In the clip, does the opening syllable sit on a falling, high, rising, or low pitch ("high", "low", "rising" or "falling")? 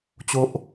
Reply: high